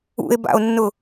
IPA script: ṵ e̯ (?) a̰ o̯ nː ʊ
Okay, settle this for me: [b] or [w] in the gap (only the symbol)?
b